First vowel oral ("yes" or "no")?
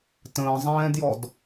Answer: no